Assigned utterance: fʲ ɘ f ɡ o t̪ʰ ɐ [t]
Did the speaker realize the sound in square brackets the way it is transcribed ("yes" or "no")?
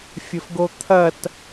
yes